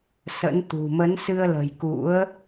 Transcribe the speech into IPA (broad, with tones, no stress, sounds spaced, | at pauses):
s ə̰˧˥ n t̪ ṳ˨˩ m ə˨˦ n s ɨ˧ ə̯ l ə̤˨˩ j k ṵ˧˥ ə̯